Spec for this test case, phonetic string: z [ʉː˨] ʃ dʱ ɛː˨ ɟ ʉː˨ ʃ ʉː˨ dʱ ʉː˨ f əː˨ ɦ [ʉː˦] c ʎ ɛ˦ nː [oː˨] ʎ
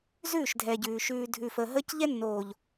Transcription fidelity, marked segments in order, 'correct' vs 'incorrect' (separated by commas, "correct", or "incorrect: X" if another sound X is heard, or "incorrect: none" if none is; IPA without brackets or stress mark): incorrect: ʉː˦˨, incorrect: əː˦, correct